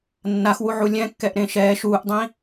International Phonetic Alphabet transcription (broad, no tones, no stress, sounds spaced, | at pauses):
nː a x w u ʕ u lʲ ɛ̃ kː ɛ ʔ ɾ ẽ ʃ ɛː ʃ uː ʔ dˤ ĩ